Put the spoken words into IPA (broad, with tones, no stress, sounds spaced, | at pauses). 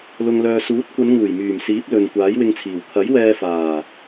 l ʊ˨ ŋ l œː˨ s uː˨˥ t̚ kʷ ɐ˨˧ n ŋ uː˨˩ j m yː˨˩ m s iː˨˥ p̚ l ɵ˨ n kʷ aː˨˥ j w ɪ˧ ŋ t͡sʰ iː˨˩ w kʰ ɐ˨˥ j w ɛː˧ f aː˨˩